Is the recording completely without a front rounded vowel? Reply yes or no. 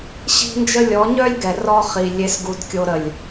no